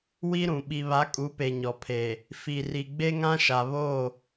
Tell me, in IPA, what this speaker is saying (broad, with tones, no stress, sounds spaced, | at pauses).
w i˦ ɾ ũ˨ ɓ i˨ β a˨˦ kʼ u˨˦ p e˨ ɲ ɔ˨ pʰ eː˨ | f i˨ r i˨ ɡ͡b e˦ ŋ ã˦ ʃ a˨ β oː˦˨